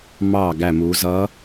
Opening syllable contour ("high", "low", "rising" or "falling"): low